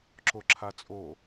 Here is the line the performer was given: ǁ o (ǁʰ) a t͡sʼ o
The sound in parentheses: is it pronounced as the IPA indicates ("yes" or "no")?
yes